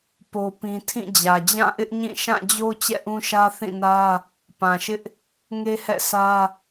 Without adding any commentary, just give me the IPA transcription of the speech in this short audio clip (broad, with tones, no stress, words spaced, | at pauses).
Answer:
po˦pĩ˦ tʰĩ˦˨d͡ʑä˨ d͡ʑã˦˨ʔɪ˦ʔɲĩ˦˨ ʃã˦˨d͡ʑo˦ t͡ɕɛ̰˦˨ʔũ˦ʃä˦ θĩ˦˨nä˦ | pã˨ʃɪ˦ʔ | ŋe˦hɛ̰˦˨sʰä˦